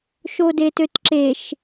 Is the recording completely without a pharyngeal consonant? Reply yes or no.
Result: yes